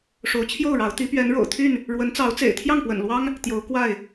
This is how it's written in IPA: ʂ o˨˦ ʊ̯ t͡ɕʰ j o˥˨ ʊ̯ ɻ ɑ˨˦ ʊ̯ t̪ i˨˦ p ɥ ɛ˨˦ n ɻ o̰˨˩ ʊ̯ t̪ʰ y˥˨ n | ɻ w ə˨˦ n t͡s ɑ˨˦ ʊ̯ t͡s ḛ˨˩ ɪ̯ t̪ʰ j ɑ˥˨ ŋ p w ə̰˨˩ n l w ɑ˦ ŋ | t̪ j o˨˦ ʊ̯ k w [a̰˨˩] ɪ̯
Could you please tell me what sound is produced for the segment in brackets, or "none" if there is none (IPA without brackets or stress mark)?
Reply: a˥˨